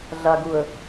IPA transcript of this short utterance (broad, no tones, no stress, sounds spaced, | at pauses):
ɮ a ɡ u ə̯